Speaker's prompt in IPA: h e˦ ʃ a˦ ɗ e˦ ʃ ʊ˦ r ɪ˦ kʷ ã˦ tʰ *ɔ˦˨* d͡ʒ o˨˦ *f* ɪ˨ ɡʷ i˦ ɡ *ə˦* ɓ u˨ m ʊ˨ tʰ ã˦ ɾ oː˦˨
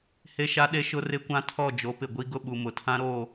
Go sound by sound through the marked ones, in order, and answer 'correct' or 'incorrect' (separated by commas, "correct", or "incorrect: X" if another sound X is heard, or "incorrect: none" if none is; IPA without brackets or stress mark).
correct, incorrect: p, incorrect: ʊ˦